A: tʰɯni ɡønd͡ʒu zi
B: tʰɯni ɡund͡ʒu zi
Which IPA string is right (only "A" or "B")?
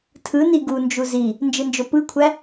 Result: B